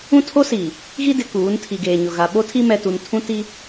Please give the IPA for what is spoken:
ũ˦ tʰ o˦ s iː˨ | ɣ i˦ d ɪ˨ k uː˨˦ n tʰ i˨ ɡ eː˨ ɲ ʊ˨ ɣ a˨ ɓ o˦ tʰ i˦ m ɛ˨ t u˨ n tʰ ũ˦ t i˦

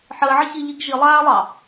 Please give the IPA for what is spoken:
ħ əː ʕ ə ç i ʎ i ɡ ʒ i lˠ aː lˠ ɑ

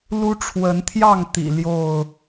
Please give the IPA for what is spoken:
l u˦ ʈ͡ʂʰ w ə˨˦ n t̪ʰ j ɑ˥˨ ŋ t̪ ḭ˨˩ l j o˥˨ ʊ̯

